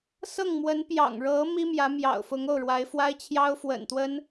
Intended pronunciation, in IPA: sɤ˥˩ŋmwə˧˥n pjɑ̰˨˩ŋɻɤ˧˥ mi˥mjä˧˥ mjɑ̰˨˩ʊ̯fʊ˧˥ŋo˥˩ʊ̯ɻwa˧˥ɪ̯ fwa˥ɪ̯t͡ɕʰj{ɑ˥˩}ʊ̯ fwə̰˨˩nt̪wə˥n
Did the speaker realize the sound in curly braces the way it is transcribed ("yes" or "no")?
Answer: no